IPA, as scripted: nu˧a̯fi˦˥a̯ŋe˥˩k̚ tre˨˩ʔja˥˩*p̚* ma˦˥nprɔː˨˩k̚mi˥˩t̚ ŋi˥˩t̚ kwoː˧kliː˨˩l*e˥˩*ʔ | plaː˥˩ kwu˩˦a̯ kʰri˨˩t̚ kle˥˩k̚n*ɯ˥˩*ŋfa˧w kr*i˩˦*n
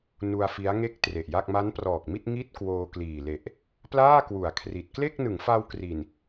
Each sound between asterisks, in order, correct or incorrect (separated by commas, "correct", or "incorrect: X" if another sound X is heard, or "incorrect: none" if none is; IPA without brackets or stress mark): incorrect: k̚, incorrect: e˨˩, incorrect: ɯ˩˦, incorrect: i˨˩